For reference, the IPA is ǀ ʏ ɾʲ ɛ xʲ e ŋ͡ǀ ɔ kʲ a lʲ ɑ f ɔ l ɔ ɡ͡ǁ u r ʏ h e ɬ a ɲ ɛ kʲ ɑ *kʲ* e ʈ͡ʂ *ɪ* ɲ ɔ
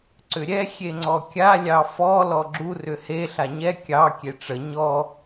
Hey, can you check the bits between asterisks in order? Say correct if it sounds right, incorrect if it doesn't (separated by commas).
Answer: correct, incorrect